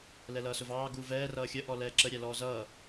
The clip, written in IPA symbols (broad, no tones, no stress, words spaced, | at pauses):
lɛlʌːsʊvɑː ɡuvɛː rʌːxʲə ʔɔlɛːǁə ɾʲælɔːzʌː